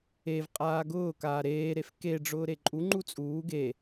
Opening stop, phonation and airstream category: ejective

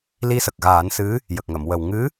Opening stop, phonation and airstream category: plain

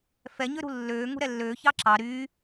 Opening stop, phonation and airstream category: click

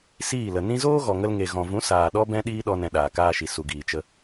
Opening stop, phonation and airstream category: implosive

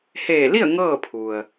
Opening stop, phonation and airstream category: aspirated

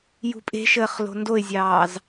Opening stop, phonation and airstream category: ejective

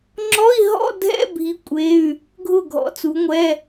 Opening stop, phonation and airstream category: click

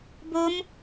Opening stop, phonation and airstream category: plain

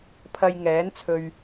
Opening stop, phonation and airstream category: aspirated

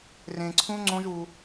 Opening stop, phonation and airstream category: click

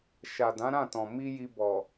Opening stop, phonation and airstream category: plain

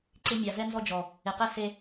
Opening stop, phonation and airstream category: click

